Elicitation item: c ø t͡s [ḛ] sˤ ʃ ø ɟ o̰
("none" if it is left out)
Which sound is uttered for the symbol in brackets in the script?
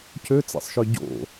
ḛ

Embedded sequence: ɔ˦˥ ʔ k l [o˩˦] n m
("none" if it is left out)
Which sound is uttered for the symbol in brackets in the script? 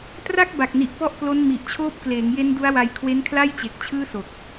o˦˥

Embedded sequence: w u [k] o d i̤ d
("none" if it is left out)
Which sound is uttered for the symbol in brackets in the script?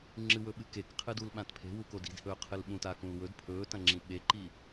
k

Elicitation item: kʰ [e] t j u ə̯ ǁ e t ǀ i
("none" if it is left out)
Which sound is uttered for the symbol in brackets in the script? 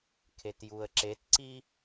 e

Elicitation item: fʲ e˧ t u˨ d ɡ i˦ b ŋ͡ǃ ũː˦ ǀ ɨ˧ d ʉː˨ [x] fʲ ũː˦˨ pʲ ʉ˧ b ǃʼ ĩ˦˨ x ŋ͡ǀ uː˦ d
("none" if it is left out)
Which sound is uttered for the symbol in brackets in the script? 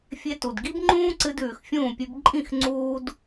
x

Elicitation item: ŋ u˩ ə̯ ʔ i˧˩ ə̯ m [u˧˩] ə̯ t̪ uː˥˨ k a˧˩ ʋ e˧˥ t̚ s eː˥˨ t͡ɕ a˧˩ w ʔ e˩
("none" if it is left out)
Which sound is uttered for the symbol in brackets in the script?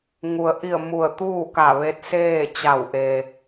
u˧˩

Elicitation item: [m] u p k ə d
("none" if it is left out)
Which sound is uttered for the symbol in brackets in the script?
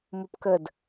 m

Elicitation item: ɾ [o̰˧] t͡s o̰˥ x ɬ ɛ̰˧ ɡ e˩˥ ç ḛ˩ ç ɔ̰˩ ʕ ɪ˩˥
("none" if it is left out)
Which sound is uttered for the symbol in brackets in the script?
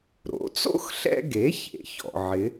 o̰˩˥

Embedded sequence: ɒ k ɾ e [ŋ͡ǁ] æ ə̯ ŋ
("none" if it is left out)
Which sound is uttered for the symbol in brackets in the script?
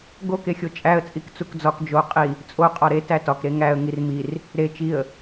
ŋ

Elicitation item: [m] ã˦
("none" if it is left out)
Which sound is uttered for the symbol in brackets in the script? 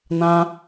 n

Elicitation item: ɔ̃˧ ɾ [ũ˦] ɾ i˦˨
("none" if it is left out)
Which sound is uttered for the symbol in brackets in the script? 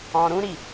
ũ˦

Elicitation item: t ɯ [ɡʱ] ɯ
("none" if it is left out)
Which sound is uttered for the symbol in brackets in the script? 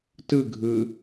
ɡʱ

